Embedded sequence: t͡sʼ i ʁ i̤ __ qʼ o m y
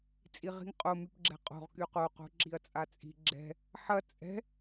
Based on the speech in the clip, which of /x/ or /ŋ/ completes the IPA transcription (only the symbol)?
ŋ